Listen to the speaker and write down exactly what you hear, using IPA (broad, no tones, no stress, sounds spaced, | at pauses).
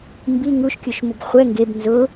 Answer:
m b i ŋ u ʃ kʲ u ʃ m ʊ b χʷ ɛ ŋ ɡ e b n z ʊ